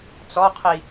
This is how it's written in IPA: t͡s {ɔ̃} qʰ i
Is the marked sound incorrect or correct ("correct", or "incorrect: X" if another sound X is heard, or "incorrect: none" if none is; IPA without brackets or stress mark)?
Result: incorrect: ɔ